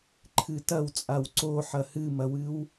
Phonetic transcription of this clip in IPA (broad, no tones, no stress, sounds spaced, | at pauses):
ǃʰ ɨ t ɐ w t͡sʼ a w ǀ o ħ ɐ h ɨ m ɐ w ɨ w